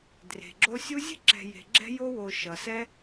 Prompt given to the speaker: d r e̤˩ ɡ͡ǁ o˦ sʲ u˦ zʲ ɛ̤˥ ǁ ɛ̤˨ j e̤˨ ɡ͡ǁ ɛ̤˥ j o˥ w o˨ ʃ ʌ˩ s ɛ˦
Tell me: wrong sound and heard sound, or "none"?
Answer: none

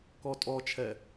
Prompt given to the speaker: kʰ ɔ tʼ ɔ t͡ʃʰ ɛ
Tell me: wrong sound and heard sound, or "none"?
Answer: kʰ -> k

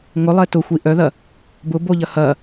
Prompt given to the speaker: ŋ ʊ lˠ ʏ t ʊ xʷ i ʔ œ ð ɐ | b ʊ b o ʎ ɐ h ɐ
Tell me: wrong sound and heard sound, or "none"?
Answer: ʏ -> ɛ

